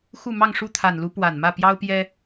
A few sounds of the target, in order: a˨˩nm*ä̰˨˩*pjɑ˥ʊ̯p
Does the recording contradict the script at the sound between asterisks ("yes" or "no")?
yes